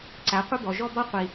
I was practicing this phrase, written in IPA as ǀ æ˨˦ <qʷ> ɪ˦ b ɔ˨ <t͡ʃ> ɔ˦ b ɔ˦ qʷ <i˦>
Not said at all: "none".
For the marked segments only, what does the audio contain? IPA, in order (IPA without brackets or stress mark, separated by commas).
qʷ, ʒ, i˦